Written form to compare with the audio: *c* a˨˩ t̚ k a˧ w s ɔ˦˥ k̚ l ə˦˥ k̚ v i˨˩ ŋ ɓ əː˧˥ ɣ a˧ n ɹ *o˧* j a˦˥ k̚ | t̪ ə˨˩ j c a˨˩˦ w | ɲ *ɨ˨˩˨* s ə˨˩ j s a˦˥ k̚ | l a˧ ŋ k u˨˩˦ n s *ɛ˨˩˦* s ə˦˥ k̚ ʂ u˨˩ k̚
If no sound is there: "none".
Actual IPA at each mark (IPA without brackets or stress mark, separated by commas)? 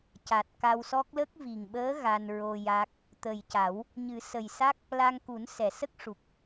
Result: c, o˧, ɨ˨˩˦, ɛ˨˩˨